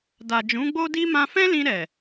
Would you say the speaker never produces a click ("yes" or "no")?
yes